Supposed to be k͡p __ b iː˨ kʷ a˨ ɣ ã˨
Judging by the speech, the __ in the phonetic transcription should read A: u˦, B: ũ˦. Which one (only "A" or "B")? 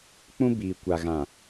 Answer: B